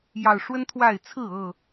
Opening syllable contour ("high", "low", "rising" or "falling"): low